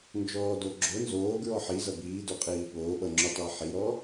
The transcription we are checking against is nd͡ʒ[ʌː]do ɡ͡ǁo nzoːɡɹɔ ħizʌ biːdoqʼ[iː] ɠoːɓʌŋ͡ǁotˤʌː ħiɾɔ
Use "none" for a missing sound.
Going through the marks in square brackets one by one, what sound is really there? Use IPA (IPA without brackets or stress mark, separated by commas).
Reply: ɔː, iː